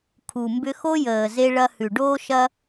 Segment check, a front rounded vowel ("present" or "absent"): present